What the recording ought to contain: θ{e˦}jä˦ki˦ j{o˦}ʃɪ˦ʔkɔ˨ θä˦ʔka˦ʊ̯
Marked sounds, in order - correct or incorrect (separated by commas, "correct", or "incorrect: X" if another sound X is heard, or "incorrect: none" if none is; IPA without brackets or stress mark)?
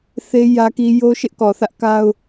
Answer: correct, correct